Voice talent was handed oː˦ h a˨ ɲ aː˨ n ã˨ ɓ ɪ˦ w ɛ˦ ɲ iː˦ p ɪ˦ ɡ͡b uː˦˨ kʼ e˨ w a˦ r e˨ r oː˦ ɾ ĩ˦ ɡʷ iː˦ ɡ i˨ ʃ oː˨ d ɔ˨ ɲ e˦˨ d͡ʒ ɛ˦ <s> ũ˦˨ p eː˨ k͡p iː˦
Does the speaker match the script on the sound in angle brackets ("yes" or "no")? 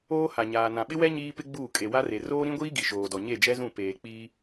no